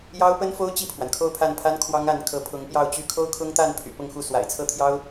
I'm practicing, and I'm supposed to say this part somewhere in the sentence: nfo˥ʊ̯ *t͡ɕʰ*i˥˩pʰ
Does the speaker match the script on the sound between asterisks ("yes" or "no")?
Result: no